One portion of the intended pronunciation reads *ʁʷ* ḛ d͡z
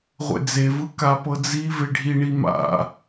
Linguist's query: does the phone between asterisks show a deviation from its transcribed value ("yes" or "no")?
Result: no